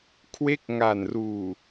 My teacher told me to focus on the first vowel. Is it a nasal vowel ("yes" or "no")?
no